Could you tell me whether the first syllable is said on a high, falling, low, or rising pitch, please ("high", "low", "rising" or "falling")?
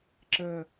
low